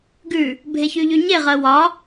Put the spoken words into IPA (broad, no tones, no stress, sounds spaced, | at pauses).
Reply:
ɡ ʉ | bʱ e ç y ʎ y ɲ e ʁ ɜ w ɒ